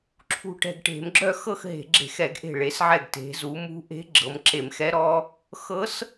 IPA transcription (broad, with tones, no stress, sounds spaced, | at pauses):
ǁʰ ṳ˧˩ ʈ ɛ̤˧˩ ɡ ʈ e̤˧˩˧ m ɡ͡ǁ œ˥˧ x ɤ˥˧ x ɦ e̤˧˩˧ ɡ͡ǁ e̤˧˩˧ x ɛ˧˩˧ ɡ ʔ e̤˧˩ ɭ e˩˧ s ʕ ɛ˧˩ ɡ t e̤˩˧ z u˩˧ m ṳ˧˥ ʔ e̤˧˥ ɡ͡ǁ ɤ˩˧ m ǁ e˧˩˧ m x ɛ˧˥ ɾ ɔ˧˥ | x ɤ˧˥ s